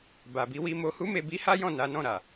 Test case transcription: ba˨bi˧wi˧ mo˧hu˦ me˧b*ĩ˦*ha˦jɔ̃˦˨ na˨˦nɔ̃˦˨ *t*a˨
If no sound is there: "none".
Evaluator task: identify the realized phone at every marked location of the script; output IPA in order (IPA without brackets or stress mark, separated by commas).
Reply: i˦, ɾ